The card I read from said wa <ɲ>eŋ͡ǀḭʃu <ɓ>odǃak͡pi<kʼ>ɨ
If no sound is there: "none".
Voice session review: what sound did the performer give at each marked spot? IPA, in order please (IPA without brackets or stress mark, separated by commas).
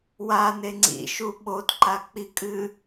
n, ɓ, kʼ